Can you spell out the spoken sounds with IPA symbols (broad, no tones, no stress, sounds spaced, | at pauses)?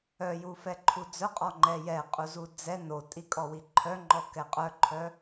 œ j u f ɛ ǃʰ u d͡z œ qʼ ɔ ŋ͡ǃ ɛ j ɛ qʼ u z u d͡z ɛ n o tʼ i kʼ ɔ w i ǃʰ œ ŋ͡ǃ ɔ k ɛ qʼ œ ǃʰ œ